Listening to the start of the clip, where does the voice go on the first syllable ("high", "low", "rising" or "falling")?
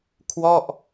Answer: falling